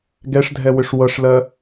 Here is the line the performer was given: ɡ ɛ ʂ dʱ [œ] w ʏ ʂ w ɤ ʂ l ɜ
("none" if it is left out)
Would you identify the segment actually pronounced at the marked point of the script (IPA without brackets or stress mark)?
ɛ